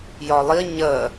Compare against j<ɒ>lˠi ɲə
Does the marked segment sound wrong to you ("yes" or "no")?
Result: no